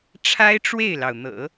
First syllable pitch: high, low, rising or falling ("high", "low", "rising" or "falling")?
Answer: high